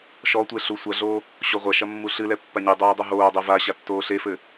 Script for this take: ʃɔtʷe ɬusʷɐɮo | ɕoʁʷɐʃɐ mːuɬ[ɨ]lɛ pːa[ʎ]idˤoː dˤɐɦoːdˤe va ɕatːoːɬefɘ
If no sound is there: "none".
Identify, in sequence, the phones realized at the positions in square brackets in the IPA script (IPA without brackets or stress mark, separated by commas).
ɨ, ɲ